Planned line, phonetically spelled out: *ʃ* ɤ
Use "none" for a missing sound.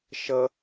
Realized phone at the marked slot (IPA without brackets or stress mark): ʃ